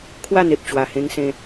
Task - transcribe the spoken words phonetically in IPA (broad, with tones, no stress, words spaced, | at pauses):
kʰwa˥˧n̪e˨p̚ t͡ɕwa˨˩hẽ˧ŋsẽ˧